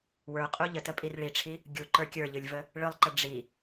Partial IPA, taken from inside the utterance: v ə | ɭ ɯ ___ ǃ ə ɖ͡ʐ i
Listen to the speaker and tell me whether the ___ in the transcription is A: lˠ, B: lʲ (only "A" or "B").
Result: A